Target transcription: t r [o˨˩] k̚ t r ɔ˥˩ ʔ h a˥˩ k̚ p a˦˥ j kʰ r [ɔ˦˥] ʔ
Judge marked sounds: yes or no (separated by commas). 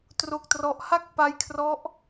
no, yes